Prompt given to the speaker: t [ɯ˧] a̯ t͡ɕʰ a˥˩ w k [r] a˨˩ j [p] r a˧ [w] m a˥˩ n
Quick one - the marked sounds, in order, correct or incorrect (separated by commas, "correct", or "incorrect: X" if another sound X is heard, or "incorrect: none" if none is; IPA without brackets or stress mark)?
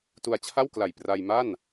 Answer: incorrect: u˧, incorrect: l, correct, incorrect: j